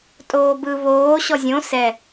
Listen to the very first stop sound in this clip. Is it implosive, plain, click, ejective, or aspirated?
ejective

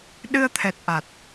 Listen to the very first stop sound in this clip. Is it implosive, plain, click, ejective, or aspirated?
implosive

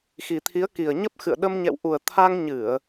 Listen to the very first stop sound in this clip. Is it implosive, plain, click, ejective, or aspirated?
aspirated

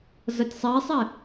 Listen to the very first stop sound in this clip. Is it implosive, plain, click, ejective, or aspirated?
plain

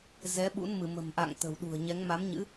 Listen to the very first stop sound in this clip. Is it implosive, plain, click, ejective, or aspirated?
implosive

